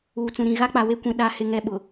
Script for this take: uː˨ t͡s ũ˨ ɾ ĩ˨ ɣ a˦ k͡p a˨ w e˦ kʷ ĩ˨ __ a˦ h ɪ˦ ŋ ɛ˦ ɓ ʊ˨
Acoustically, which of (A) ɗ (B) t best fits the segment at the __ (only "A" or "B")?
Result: A